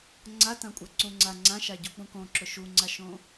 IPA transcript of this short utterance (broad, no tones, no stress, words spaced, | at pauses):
ŋ͡ǀatãkʷʼaǀũ ŋ͡ǀa ŋ͡ǀãʃaɟuk͡pũ kõǁʊ ʃuŋ͡ǀaʃõ